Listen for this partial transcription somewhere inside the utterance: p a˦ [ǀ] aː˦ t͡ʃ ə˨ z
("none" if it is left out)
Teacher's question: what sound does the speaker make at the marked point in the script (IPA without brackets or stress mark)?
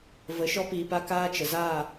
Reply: k